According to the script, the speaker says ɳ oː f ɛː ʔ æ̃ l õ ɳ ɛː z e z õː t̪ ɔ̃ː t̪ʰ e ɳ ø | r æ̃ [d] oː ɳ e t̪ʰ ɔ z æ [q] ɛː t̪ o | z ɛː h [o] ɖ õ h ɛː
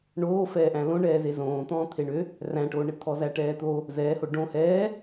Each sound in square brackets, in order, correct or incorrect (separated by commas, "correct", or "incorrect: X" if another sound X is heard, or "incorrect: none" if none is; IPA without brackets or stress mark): incorrect: ʈ, incorrect: ʈ, correct